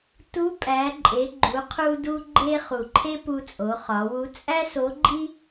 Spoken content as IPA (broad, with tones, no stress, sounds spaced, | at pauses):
t u˧˥ pʼ æ˩˧ ǃʼ e˩˧ ɡ͡ǃ u˩˧ qʰ u˧ d u˧ ɡ͡ǃ e˧ χ u˩ ǃʰ e˥ p u˧ t͡sʼ o˩˧ χ ɒ˩˧ w u˧˥ t͡sʼ æ˥ s o˧˥ ɡ͡ǃ i˥